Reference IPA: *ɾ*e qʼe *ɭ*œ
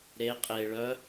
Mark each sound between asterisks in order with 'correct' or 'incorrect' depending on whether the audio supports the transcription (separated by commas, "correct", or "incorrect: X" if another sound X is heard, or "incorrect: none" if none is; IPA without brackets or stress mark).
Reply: correct, correct